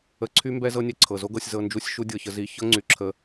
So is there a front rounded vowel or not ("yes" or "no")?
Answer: yes